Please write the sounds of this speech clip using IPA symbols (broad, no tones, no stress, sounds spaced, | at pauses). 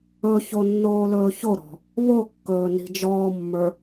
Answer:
ɵ ç o nː oː l ɵː ç o ɾ ɔ̤ | β o kː ɵː n i̤ d͡ʒ ɔː mː ə˞